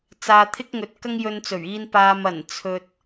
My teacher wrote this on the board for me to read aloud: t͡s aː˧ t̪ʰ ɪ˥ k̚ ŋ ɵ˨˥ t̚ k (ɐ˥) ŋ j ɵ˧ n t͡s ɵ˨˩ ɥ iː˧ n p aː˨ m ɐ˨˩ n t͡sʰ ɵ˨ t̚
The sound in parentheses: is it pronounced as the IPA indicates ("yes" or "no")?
yes